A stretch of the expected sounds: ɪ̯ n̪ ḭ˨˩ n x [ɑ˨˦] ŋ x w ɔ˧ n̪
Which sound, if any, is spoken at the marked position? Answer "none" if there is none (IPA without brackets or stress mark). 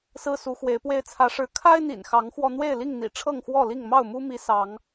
ɑ˨˦